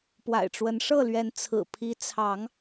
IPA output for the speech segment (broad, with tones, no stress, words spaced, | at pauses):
pwa̰˨˩ɪ̯ʈ͡ʂwə˨˦nʂɤ˥˨lɥɛ˨˦n t͡sʰɹ̩˨˩ pʰi˨˦ t͡sʰɑ˨˦ŋ